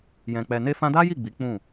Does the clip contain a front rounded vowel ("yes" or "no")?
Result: no